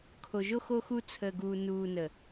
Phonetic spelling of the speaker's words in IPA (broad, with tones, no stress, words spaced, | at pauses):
kʰo˨ʒo˦ xo˦xu˦ t͡sʰəː˨ɡuː˨ nuː˨nə˨